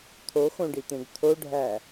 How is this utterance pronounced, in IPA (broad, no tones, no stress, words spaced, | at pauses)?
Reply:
t̪ʰoxõɖit̪ẽɡ t̪ʰoɖʱæ